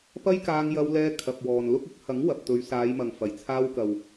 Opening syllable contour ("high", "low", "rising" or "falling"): high